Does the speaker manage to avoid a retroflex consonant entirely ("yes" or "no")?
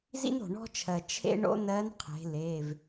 no